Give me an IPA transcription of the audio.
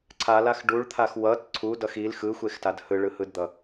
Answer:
ǀʰ a l a x ɖ u ɭ t̪ʰ a x w ʌ t ǀʰ u d ʌ x i l x ɯ xʷ e x t a d h ɯ ɭ ɯ h ɯ d d̪ ʌ

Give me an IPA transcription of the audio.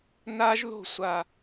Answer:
n a˦ ʒ ð o̤˦˨ sʷ a˨

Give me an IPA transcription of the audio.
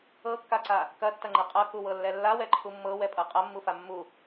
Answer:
ɤ kː a ǀ a | k ɐ tː ɐ ŋ͡ǃ ɐ qʼ ɤ k u w ɤ lː ɛ lː a w ɛ ǃʰ u mː ɤ w ɛ pʼ ɤ qʼ ɐ mː u f a mː u

